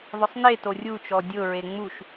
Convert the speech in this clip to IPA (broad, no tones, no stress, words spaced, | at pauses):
ðˤʊsˤneto rʲut͡ʃɔ dʲʊɹe ŋ͡muʃ